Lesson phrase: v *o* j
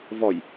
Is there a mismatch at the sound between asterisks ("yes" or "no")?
yes